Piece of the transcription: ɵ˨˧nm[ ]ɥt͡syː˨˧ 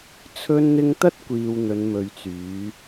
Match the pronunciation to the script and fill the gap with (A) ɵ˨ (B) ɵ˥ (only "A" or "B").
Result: A